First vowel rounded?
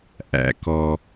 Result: no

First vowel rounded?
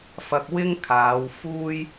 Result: no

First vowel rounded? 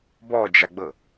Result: yes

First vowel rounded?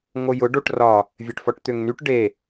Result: yes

